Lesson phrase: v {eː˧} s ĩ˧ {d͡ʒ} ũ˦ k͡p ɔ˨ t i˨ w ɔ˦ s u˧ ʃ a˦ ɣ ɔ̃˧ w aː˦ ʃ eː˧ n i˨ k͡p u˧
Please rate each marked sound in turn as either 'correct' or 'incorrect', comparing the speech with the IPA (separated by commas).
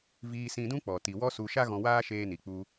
incorrect, incorrect